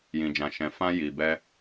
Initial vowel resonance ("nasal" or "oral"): nasal